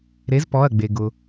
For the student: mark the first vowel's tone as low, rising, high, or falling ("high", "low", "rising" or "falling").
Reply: rising